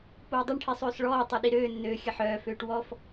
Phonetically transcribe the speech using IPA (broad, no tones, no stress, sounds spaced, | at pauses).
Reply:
p oː dˤ ø ɳ ʈʰ i sˤ øː s ɭ ɔː tˤ i ɗ i ɾ øː nː øː xʲ ə ħ œː f øː ʈ w ɔ f